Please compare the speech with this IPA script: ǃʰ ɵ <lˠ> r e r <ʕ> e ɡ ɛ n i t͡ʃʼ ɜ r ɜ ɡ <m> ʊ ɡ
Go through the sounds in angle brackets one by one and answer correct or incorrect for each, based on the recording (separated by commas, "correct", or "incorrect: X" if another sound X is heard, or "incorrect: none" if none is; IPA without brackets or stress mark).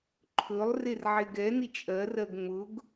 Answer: correct, correct, incorrect: ŋ͡m